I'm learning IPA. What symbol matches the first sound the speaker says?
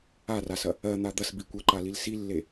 a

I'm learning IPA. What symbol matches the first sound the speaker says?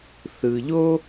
θ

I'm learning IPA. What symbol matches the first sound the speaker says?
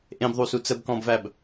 ʔ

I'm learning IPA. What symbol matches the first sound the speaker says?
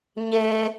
ɲ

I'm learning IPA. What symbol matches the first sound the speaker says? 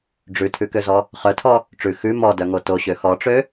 ɖ͡ʐ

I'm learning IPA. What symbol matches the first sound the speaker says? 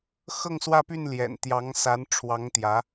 x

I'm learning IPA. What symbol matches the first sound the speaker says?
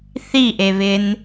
θ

